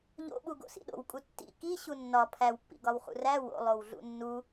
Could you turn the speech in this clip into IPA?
ʎ o̰ ɓ u ɡ o̰ s ḭ ɗ o̰ w kʼ u tː ḭ k i ɕ u nː ɒ pʰ æ w pː ḭ ɡ ɒ w χ ṵ r æ w o̰ lˠ o w ɮ ṵ nː u

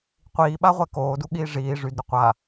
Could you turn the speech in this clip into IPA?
qʷ iː ɓ a ʁʷ ɛ k oː d u ɠ iː ʐ iː ʐ y d ɾ y qʷ a

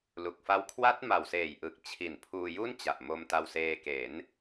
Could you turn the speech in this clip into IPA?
l u˨˩ k̚ f a˦˥ w kʰ w a˦˥ t̚ m a˨˩ w s eː˨˩ j ʔ ɯ˨˩ k̚ t͡ɕʰ i˨˩ n pʰ uː˧ j u˥˩ n t͡ɕ a˨˩ ʔ m o˧ m t a˧ w s eː˧ k e˩˦ n

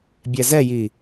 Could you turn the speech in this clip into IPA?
bʲ ɛ z ɛ j i

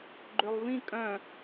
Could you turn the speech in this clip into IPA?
ɡ͡ǃ ø lˠ v ĩ kʼ œ̃

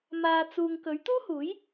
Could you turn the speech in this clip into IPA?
m aː˨ t͡s uː˨ ŋ k ɵ˨˥ ɥ t̪ uː˥ h uː˨˥ j

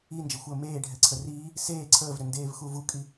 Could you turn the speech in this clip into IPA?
i n d͡ʒ ə xʷ əː m eː ɖʱ ɛ ǀʰ ə r iː | s eː ǀʰ əː v ɾ ʏ n d eː v x u v u kʼ i

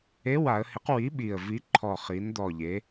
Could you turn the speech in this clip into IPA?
e˧˥˧ w a˩˧ ə̯ h ɪ˨˥ q w i˨˥ ɓ i˨˩ ə̯ v i˨˥ ǃʰ ɔ˨˩ χ i˩˧ n d̪ ɔ˨˩ ʎ e˩˧

